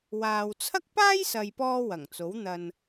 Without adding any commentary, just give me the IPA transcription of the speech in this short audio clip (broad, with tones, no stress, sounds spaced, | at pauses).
w aː˨ w t͡sʰ ɐ˥ k̚ p aː˥ j s ɐ˨ j p ɔː˧ w ɐ˨˩ ŋ t͡s o˨˥ w n̪ ɐ˨ n